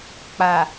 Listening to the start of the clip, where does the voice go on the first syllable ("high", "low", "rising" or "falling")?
low